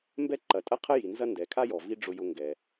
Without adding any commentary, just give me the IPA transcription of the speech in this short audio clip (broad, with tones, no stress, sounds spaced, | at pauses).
m b ɛ˦ ǃ ɐ˩ tʼ ɐ˥ qʰ ə˥ j i˩ n z ɐ˥ n d ɛ˩ kʰ a˥ j ɔ˩ v i˦ ɖ͡ʐ ʊ˨ j ʊ˨ ŋ ɡ ɛ˩